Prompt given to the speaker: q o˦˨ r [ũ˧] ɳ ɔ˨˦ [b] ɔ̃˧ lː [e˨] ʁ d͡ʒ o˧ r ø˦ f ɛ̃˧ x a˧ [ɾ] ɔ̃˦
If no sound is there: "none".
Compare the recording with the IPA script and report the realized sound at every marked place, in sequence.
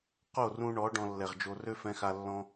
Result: ũ˧, ɖ, ɛ˨, lː

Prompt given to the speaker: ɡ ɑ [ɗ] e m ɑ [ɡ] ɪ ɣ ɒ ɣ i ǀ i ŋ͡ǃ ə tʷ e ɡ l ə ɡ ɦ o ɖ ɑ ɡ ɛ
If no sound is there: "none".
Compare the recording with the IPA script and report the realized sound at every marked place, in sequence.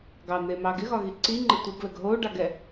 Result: n̪, ɡ

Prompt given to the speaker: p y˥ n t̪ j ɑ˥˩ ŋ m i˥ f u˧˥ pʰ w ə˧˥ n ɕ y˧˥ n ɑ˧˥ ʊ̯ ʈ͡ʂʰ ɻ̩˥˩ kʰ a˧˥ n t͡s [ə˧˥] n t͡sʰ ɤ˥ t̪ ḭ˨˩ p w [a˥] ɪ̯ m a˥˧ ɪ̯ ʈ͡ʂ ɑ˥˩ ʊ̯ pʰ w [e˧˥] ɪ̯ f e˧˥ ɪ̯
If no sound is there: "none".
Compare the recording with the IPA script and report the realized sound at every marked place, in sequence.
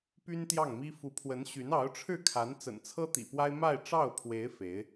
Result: ə̰˨˩, a˥, e˧˥

